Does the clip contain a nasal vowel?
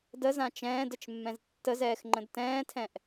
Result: yes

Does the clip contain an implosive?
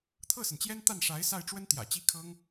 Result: no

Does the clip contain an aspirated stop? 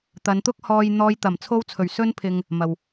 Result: yes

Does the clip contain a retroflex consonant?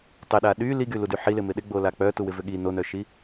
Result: no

